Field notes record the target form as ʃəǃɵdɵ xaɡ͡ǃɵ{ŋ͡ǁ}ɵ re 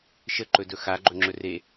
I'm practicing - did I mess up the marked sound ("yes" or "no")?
no